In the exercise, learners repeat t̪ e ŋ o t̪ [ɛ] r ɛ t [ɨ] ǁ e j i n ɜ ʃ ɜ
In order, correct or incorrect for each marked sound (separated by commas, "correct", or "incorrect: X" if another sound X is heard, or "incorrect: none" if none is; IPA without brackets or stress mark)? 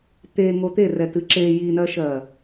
incorrect: e, correct